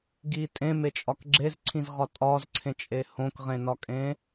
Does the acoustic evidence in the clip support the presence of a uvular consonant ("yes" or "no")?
yes